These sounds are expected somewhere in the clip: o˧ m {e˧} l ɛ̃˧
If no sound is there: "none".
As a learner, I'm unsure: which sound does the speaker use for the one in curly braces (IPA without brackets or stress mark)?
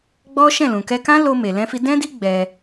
e˨